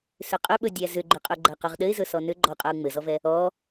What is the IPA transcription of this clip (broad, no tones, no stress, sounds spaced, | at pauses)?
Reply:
s ʏ qʼ ʏ ɓ ɵ dʲ æ z ʏ ɡ͡ǃ ʏ qʼ ɵ ɡ͡ǃ æ q ɵ ʁ ɗ ɘ ɪ̯ z ɵ s ɔ n ʏ ɡ͡ǃ ɔ qʼ a ʊ̯ ŋ͡m ɘ z ɔ v ɛ | ɔ